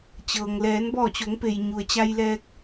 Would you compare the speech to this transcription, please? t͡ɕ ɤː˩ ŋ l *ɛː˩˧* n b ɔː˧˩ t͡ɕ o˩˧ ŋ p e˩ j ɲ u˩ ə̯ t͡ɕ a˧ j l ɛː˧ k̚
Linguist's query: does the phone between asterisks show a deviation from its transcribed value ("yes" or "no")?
no